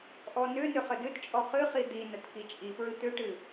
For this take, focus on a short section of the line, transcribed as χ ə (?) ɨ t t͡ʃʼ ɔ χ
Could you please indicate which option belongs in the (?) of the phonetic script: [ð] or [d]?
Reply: d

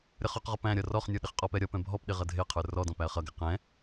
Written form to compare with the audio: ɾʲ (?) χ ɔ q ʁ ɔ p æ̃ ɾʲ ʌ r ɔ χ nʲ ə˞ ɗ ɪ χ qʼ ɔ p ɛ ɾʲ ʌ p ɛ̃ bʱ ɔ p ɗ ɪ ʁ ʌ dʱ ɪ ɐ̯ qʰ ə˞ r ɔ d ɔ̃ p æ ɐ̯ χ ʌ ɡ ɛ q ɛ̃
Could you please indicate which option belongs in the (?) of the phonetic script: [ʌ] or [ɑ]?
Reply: ʌ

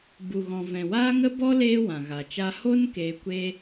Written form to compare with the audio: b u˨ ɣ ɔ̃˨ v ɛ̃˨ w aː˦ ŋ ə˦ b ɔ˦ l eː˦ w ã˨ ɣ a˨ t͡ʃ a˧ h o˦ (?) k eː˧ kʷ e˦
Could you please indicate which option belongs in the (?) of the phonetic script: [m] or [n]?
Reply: n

